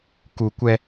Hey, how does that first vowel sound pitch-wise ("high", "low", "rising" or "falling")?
low